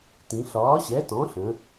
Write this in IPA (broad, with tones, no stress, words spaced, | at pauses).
tĩ˩˧ ɬɒː˩˥ɕɛ˩˥ tɔ̃˩˥ɬə̃˩˧